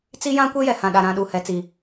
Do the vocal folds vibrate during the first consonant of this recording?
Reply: no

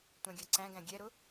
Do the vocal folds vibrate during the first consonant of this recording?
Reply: no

